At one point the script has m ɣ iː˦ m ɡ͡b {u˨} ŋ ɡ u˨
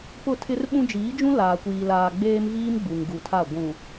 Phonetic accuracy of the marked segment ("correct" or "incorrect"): correct